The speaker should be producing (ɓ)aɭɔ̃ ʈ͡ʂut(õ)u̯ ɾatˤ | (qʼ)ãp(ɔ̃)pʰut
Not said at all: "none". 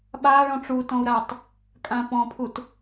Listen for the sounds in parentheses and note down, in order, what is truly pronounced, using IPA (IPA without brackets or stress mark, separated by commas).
ɓ, ɔ̃, kʼ, ɔ̃